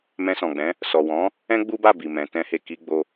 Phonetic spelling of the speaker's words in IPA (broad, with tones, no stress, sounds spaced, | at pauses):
m ɛ̃˧ s ɔ̃˨ ɡ͡b ɛ̃˨˦ | s ɔ˨ w ɔ̃˨˦ | ɛ̃˦ ɡ͡b u˦ b a˦˨ b i˨ m ɛ̃˨˦ t ɛ̃˦ h e˦˨ k i˧ ɡ͡b o˧